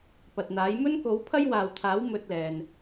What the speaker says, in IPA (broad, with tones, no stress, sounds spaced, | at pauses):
p ɐ˨ t̚ n̪ aː˨˥ j m ɵ˥ n k o˨˥ w pʰ ɐ˥ j w aː˨ w t̪ʰ aː˨˥ w m ɵ˧ t̚ l ɛː˨ n